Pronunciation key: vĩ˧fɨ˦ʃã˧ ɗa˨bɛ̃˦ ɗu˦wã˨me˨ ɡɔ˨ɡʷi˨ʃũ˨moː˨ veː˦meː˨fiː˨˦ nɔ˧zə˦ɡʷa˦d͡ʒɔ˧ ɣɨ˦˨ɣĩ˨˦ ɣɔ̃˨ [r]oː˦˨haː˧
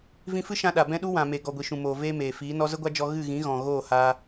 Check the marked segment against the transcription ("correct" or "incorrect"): incorrect